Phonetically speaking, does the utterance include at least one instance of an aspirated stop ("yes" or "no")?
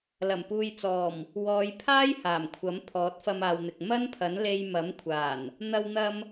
yes